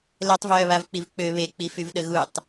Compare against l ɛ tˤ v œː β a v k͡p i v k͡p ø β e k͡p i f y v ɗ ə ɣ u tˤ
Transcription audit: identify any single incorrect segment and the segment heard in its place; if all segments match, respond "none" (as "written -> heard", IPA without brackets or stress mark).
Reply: none